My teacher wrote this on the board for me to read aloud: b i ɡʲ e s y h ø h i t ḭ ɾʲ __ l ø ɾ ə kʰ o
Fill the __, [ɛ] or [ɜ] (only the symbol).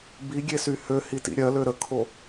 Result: ɜ